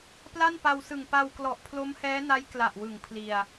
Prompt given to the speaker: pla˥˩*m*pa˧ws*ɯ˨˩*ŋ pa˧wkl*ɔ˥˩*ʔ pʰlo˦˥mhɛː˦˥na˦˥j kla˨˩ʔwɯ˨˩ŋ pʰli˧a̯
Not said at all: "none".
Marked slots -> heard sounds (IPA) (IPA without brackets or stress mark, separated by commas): n, ɯ˨˩, ɔ˨˩